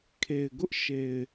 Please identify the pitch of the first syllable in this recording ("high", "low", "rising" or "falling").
low